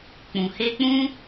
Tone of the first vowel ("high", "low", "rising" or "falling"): low